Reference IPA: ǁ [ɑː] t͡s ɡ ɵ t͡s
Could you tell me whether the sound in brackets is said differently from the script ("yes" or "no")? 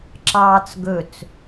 no